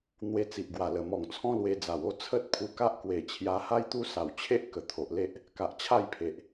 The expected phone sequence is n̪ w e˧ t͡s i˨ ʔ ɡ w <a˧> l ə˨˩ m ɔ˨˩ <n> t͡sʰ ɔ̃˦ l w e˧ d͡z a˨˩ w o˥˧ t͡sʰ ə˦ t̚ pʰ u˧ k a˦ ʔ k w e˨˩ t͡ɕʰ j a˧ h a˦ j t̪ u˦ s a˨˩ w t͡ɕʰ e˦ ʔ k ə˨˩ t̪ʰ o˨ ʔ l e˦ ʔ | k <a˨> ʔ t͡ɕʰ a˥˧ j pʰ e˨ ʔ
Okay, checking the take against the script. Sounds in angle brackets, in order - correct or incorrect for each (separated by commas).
incorrect, incorrect, correct